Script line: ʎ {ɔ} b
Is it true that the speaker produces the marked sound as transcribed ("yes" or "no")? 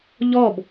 yes